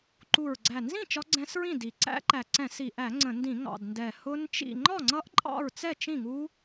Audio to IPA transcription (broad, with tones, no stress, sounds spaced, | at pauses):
ǃ u˨˩ ɹ ɡ͡ǀ æ˨˩ n z ĩ˥˨ t͡ʃ ɒ˦˥ ɡ͡ǀ ɛ̃˦˥ s ɹ ĩ˥˨ d i˨˩ ǀ æ̰˦˥ ǃ æ˨˩ ǀ ɛ̃˧˩˧ s i˨˩ ʔ æ˧˩˧ ŋ͡ǀ ə̃˧˩˧ n d ĩ˧˩˧ ŋ ɑ̰˨˩ d n d ɛ˨˩ h ʊ˦˥ n t͡ʃ ḭ˥˨ ŋ͡ǃ ɒ˥˨ ŋ͡ǀ ʌ˦˥ ʔ ǃʼ ɑ̰˥˨ ɹ t͡s ɛ˥˨ t͡ʃ ĩ˥˨ ŋ u˦˥